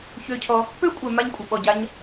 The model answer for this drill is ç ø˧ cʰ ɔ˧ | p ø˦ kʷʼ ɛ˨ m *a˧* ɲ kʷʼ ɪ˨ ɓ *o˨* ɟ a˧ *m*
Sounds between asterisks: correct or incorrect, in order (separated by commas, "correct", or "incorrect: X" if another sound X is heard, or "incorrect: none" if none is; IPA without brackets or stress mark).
correct, incorrect: ɔ˨, incorrect: ɲ